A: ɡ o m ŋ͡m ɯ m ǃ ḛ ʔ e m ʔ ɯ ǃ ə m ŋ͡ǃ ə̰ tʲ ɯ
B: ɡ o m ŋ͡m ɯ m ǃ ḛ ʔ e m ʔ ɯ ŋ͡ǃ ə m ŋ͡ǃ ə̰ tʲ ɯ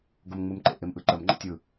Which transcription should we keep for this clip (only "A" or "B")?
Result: A